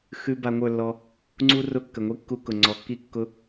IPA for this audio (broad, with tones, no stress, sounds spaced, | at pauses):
x ʉ˧ b a˧ ŋʷ ə˞˦˨ lː ɔ˧ | ŋ͡ǀ u˦ r ʊ˦˨ kː ə˨ ŋʷ i˦ kː u˧ k ʊ˨ ŋ͡ǀ ɔ˨ kː i˦ kː ʊ˧